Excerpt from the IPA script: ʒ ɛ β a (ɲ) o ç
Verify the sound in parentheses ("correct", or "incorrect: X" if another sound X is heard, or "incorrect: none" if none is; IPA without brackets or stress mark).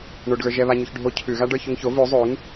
correct